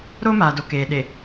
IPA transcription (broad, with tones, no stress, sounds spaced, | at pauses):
ɾ o˦ m aː˨ d o˨ k eː˨ ɗ e˨